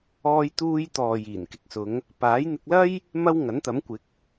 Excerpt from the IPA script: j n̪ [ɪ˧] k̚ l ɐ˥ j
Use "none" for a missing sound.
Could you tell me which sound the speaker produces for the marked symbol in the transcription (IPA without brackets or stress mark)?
ɪ˧